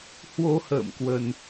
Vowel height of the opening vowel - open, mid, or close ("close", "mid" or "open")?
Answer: mid